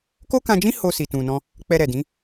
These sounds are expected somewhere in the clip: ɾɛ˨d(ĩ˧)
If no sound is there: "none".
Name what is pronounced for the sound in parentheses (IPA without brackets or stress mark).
ĩ˨˦